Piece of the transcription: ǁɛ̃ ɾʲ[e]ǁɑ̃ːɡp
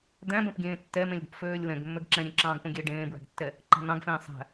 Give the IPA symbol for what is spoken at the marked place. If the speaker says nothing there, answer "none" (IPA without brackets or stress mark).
ẽ